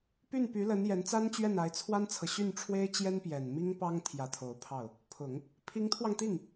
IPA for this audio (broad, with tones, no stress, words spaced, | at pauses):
py˥˩npy˧˥lə˧˥n jɛ˧˥nt͡sa˥nt͡ɕɥɛ˥˩na˧˥ɪ̯ t͡sʰwa˥nt͡sʰɤ˨ ɕy˥˩nʈ͡ʂʰwe˥ɪ̯ t͡ɕjɛ˥npjɛ˨˩nmi˥ŋ pɑ˥ŋ t̪ʰjä˧˥t̪ʰo˨˩ʊ̯pʰɑ˥˩ʊ̯ | pʰʊ˨˩˦ŋ | pʰi˧˥ŋt̪ʰwɑ˧ŋt̪i˥˩ŋ